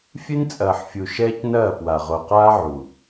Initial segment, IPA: fʲ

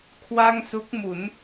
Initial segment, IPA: kʰ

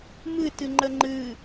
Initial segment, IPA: m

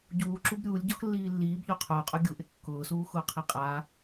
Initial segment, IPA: ɟ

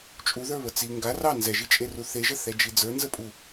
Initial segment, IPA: t͡ʃʼ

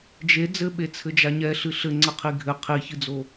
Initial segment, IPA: d͡ʒ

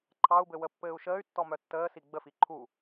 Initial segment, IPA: ǃʰ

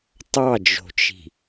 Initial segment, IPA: tˤ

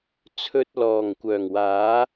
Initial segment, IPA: t͡sʰ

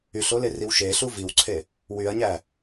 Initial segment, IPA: y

